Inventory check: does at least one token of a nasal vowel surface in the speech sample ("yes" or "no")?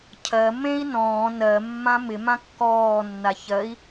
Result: yes